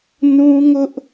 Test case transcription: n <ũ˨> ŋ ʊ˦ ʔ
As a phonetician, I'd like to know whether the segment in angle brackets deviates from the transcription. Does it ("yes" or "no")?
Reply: yes